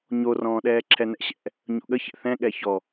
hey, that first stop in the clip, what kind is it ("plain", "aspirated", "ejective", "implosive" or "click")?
implosive